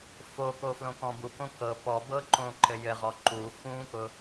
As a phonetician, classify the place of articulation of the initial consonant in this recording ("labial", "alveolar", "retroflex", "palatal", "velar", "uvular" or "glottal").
labial